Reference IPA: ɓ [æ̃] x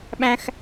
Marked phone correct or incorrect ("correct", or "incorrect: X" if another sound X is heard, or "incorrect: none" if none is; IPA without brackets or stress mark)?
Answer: correct